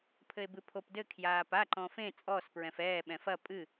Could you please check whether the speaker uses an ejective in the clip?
yes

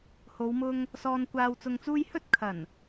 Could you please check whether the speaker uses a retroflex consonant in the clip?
no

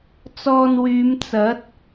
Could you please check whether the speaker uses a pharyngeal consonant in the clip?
no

